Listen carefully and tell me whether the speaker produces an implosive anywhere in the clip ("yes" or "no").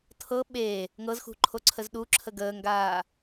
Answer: yes